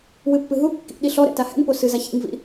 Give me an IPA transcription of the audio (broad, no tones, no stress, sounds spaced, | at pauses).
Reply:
w ɨ pː ɨ ɦ u kː ḭ ɗ i ɬ ɔ ɾ ɛ̰ t a h ɛ̰ n p o s ɨ z a ç ḭ ŋ v ḭ